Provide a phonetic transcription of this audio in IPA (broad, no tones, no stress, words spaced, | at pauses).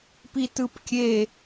pitɯpkʲe